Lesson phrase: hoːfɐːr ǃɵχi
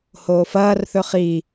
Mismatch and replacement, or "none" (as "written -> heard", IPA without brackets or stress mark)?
ǃ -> θ